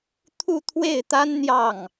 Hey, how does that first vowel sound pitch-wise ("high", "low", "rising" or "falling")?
falling